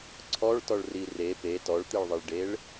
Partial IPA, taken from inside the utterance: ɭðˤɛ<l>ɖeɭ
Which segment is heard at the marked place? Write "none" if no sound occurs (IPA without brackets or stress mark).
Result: ɭ